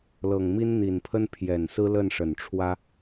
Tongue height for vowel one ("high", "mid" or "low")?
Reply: mid